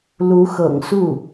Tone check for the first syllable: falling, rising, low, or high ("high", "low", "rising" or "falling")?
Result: rising